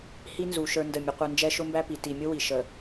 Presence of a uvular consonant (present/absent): present